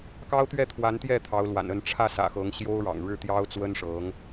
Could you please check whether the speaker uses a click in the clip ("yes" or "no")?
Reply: no